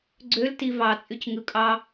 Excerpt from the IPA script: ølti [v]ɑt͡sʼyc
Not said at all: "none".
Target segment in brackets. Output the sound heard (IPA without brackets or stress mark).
v